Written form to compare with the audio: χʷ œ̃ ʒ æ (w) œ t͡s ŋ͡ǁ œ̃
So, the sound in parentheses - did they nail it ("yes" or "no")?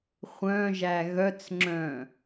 no